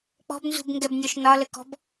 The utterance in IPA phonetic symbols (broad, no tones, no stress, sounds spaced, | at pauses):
k͡p ɔ̤ b n z ṳ b ŋ ɡ ɛ b nʲ ɔ ʃ n ɒ l ə k ɔ̤ b